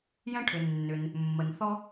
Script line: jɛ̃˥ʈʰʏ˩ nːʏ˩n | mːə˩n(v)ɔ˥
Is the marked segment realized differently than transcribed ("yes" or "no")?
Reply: yes